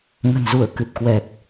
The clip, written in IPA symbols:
ŋ ə̤˨˩ n z u˧˩ ə̯ k ɨ˨˩ p̚ k w ɛ˨˩ p̚

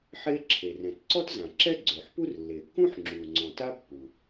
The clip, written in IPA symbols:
ħ e˥ ǁʰ e˩ r ɛ̃˩ t ǀ ɔ˥ t z ã˩ ǁ ɛ˥ ɡ͡ǀ ø˩ ħ p u˥ r lː e˩ kː ũ˥ ħ ŋ͡ǁ u˩ ŋ͡ǀ ɔ̃˩ t a˥ pː u˩

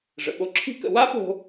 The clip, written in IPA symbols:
ʐ ə̰˩ ɓ o˧ ǁʰ i̤˥ k ə̰˧ w a˥ p o̤˧

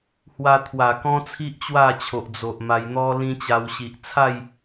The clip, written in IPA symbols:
h w a˧ t̪ʰ w a˨˩ k ɔ̃˦ t͡sʰ i˦ ʔ t͡ɕ w a˥˧ t͡ɕʰ o˨ ʔ d͡z o˨ ʔ m a˧ j n̪ ɔ˦ l ĩ˦ t͡ɕ a˧ w ɕ i˨ ʔ t͡sʰ a˥˧ j

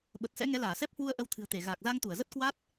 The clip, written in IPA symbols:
ɓ ə˨˩ t̚ s ɛ̰˧˥ ŋ ɛ˨˦ l aː˧˩ s ɛ˦˥ p̚ h w u˧ ə̯ ʔ ə˨˦ w t̪ʰ ɨ̤˨˩ ə̯ t̪ e˧˩ ɣ aː˨˩ k̚ z a˧ ŋ t̪ u˧˩ ə̯ z ə˦˥ t̚ k w a˦˥ t̚

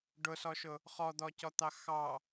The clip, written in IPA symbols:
ɖ ʊ s ɔ ʃ ʊ | χ ɔ d̪ ɔ c ɔ t̪ ɑ x ɑ

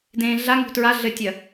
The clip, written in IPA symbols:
d ẽː ɮ a ŋ ṳ t ɹ a ɮ ɘ tʲ ɐ

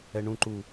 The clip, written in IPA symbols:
ɛ ɳ ũ ǃ u

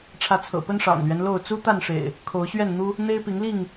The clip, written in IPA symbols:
ʈ͡ʂʰ ä˨˦ t͡sʰ ɤ̰˨˩ p ə˦ n ʂ ɑ̰˨˩ ŋ l ɥ ɛ˦ n l o˥˨ ʊ̯ t͡s u˦ t̪ a˥˨ n ʂ ḛ˨˩ ɪ̯ | kʰ o˨˦ ʊ̯ ɕ ɥ ɛ˥˨ n n̪ u˦ | n̪ e˦ ɪ̯ p i˨˦ ŋ l i˥˨ ŋ

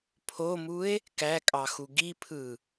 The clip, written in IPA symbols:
pʰ o m u e̯ | k æ kʼ ɑ x u ɡ i pʰ ɯ

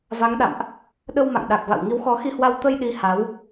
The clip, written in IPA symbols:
v a˨˦ ŋ ɗ a̰˧˨ m ʔ | ɗ ə˧ w m a̰˧˨ ŋ ɗ a˨˩ k̚ v a̰˧˨ w ŋ i˨˦ w x ɔ˨˦ x i˧ h w a˧ w t̪ ə˧ j ɗ i˨˦ h a˨˦ w

